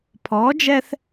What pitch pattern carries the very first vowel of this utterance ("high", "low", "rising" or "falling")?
rising